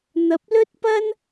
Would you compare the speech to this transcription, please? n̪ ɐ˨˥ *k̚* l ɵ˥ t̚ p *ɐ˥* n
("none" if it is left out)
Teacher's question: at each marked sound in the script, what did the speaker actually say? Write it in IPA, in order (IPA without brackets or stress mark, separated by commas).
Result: p̚, ɐ˥